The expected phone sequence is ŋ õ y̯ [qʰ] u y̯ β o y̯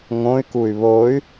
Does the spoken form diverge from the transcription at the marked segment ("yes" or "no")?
yes